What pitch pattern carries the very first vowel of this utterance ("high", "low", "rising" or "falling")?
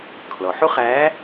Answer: low